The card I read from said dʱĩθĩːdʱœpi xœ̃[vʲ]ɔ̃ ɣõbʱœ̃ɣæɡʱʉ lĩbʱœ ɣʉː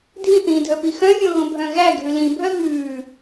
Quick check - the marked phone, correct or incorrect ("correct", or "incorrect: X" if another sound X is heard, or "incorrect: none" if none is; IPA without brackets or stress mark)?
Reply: correct